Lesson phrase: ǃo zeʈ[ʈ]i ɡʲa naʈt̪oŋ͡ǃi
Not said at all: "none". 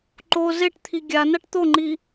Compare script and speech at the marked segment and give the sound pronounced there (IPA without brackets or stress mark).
t̪ʰ